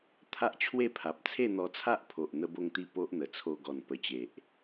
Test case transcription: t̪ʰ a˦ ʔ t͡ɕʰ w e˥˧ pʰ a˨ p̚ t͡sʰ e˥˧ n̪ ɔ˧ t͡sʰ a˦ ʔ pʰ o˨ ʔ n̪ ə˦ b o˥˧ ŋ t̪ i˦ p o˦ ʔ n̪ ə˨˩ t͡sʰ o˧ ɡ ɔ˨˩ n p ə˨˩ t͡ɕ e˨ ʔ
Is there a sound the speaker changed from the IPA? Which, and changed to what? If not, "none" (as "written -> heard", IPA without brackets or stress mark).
i˦ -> i˥˧